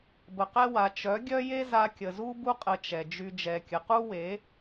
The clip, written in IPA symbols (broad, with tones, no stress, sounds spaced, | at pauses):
b ə˨ q ɛ˧ w a˨ t͡ʃ œ˨˦ ɡʲ œ˦ j e˦ z a˧ kʲ ə˨ z u˦ b u˦ qʼ ə˧ t͡ʃ ɛ˨ d͡ʒ y˧ d͡ʒ ɛ˨ kʲ ə˨ q u˦ w e˨˦